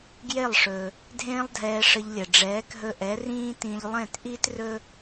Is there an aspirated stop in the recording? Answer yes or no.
no